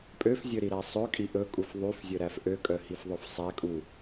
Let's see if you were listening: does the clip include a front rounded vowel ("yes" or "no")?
yes